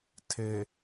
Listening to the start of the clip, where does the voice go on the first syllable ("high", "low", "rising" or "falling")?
low